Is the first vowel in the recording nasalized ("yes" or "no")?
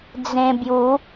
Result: yes